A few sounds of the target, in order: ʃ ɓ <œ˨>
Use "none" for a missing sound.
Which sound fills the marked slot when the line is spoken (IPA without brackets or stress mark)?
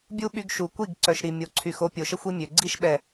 ɛ˨